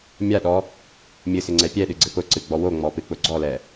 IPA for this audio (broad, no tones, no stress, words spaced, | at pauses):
mʲaɗɔ | mʲɨsɪŋ͡ǀɛ pʲɛɗɨɡ͡ǀɪ pʊǀɨɡ͡bɔ woŋ͡mɔpɨk͡pʊ ɡ͡ǀɔlɛ